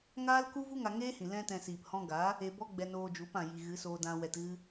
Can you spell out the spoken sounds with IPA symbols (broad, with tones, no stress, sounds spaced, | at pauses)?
ŋ aː˦ l k u˦ v u˦ ŋ a˧ ŋ eː˦ h ĩ˨ l ɛ̃˦ t ɛ̃˧ s iː˨ p h ɔ̃˧ ɡ aː˨˦ | e˧ b ɔ˦ ɡ͡b ɛ˧ n oː˧ d͡ʒ u˨˦ p ã˨ j i˨ ɣ ɨ˨˦ s oː˧ d ã˧ w ɛ˧ t ɣ ɨ˦